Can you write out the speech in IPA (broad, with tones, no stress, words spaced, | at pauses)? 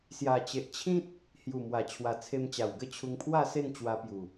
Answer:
sja˨˩t͡ɕe˨ʔ t͡ɕʰĩ˦t̚ | hju˨˩mwa˨˩t͡ɕʰwa˨˩ t͡sʰe˧mt͡ɕa˨˩wɡə˥˧ t͡ɕʰu˧ŋpʰwa˥˧se˥˧n t͡ɕwa˧pju˨˩